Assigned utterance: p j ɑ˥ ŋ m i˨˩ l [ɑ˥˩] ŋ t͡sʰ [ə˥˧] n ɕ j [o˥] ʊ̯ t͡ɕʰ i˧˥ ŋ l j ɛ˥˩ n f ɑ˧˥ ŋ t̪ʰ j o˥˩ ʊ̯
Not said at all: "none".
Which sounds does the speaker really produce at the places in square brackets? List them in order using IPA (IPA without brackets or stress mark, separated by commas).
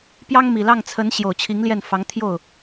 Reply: ɑ˥˩, ə˧˥, o˨˩